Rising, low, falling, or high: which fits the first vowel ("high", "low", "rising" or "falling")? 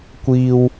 high